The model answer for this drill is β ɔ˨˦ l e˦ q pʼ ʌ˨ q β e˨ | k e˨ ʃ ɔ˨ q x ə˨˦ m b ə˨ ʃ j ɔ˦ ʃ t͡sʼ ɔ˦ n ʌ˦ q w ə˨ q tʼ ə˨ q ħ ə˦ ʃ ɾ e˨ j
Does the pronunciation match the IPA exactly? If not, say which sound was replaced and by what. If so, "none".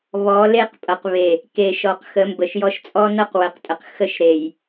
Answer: ħ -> x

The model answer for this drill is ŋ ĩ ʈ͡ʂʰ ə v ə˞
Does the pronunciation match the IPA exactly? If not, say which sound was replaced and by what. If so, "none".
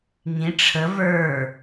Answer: none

